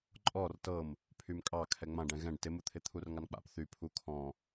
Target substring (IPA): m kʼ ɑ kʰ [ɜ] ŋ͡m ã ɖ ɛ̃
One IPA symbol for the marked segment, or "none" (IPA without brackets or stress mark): ɛ